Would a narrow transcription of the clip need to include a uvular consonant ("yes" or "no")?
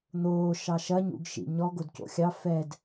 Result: no